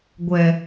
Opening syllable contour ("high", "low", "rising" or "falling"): low